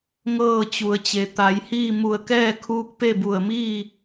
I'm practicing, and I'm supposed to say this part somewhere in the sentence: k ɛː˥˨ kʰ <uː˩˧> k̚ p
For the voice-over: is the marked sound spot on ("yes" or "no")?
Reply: no